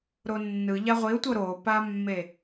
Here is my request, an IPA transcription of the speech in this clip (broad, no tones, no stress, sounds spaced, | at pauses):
ɾ o nː ɯ ʎ a ʁʷ i ʊ̯ tʷ ɤ ɾ o p a mː e